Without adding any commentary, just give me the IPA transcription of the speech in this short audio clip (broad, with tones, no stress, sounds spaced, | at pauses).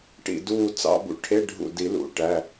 ʈ ḭ˧˩ d uː˧˩ t͡s ɑ̰˧˥˧ b ṵ˧˥˧ ʈʰ e˧˥˧ ɖʱ ṵ˧˩ d i˨˩˦ l ṵ˩˧˩ ʈ æ˩˧˩